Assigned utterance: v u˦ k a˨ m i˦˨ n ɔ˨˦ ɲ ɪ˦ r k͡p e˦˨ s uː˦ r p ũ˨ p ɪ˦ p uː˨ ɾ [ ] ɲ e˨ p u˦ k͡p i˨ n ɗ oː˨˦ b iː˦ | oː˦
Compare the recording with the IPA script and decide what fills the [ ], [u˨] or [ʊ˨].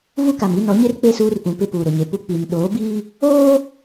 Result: ʊ˨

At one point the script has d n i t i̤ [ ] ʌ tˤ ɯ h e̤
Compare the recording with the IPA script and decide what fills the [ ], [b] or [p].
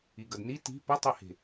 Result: p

